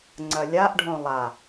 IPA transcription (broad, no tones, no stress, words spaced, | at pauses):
ŋ͡ǀɐlʲaʔɖʱõ lˠa